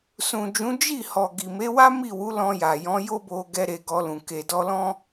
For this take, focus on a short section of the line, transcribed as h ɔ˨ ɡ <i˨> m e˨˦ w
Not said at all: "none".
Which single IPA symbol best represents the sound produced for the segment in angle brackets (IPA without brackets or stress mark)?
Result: i˨